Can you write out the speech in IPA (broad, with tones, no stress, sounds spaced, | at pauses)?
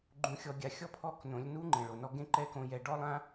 ɡ͡ǃ ũ˨ xʲ ɔ˨ ɡʲ a˨ xʲ ɔ˦ pʰ ɔ˦˨ k n õ˨˦ lʲ n u˦ ŋ͡ǃ ẽ˨ ɭ o˨ n ɔ˦ ɡ ẽ˦ ǃ ɛ˦ k õ˧ j ɛ˧ ɖ ɔ˦ lˠ ã˦